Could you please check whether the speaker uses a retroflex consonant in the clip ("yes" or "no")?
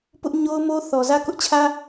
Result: no